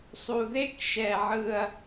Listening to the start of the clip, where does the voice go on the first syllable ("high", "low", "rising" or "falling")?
low